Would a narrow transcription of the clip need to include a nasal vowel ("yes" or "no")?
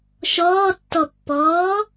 no